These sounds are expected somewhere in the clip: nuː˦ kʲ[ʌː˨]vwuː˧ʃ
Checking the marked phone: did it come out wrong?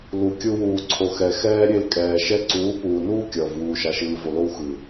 no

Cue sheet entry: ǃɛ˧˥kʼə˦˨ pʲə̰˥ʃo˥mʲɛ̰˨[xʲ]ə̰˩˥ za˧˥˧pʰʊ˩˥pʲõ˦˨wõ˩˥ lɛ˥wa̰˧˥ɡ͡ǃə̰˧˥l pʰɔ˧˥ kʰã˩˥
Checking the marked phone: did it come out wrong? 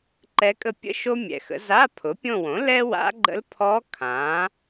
yes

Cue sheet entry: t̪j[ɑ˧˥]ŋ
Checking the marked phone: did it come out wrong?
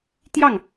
yes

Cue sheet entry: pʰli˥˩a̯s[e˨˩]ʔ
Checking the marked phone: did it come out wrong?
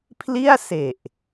no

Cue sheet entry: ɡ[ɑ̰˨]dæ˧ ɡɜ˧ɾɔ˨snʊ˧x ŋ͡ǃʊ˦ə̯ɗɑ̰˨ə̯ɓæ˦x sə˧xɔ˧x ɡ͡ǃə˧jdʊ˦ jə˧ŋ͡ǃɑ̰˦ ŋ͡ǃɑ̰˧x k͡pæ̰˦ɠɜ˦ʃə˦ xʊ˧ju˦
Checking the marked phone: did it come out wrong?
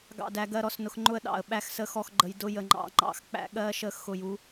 yes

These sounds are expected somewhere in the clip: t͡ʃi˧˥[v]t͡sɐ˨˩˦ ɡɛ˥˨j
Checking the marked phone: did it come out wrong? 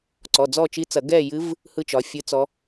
yes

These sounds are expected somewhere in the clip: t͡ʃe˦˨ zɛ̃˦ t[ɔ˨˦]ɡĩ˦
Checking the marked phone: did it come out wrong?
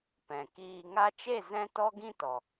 yes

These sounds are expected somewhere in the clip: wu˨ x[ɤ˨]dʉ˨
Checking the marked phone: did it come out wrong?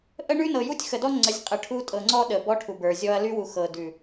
no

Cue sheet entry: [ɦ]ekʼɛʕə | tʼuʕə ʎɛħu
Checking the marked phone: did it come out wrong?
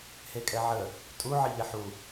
yes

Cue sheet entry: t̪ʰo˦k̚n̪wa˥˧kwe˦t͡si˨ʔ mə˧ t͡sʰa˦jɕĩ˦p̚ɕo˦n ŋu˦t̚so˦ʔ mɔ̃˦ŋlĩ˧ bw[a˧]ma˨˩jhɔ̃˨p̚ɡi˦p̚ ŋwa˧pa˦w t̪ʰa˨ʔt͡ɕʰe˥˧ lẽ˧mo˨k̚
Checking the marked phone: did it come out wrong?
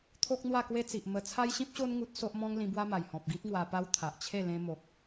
yes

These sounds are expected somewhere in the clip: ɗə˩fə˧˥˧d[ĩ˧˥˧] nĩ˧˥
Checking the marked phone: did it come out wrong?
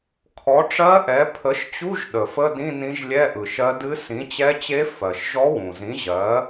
no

